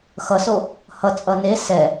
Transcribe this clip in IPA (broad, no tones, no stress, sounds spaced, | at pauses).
x ʌ s o | h ʌ t͡sʼ ʌ n e s ɛ